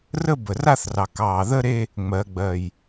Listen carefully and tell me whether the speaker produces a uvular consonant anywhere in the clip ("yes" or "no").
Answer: no